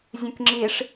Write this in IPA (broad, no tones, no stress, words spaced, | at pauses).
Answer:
zʲũkŋ͡ǁiʂ